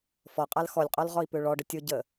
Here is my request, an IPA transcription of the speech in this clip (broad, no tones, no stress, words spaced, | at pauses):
fɔqʼal xɔlʲqʼɔl ʁɔi̯pøɭɔɖə tʲʊɟə